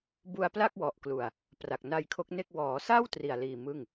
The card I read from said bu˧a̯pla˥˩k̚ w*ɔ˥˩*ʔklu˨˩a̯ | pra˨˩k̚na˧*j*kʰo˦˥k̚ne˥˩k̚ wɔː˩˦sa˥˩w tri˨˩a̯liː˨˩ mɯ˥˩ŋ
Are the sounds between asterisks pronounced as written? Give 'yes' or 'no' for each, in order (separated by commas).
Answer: no, yes